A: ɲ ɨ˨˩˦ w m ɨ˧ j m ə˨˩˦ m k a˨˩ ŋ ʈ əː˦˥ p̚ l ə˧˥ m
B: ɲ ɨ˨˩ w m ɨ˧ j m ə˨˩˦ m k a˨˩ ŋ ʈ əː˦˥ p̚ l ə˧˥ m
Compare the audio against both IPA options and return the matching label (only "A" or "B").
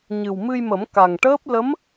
B